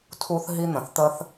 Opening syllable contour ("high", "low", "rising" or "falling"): high